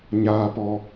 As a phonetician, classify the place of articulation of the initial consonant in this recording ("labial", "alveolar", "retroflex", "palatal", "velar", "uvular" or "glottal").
palatal